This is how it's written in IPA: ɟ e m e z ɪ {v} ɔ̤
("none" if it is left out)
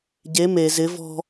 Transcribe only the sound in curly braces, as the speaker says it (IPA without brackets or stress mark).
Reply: v